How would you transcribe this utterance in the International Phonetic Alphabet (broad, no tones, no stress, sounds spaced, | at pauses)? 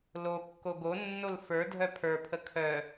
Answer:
l o kː o ɡ o nː o l f ə˞ dʱ œ pʰ ə˞ pʰ ə kʰ œ